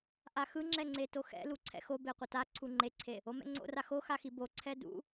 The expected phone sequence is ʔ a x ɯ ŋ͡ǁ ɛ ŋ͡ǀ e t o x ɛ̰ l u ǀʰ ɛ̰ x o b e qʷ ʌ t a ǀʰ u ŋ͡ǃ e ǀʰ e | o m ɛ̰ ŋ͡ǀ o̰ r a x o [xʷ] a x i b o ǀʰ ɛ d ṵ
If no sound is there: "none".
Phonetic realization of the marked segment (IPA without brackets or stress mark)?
x